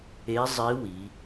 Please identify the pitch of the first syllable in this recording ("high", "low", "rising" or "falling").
rising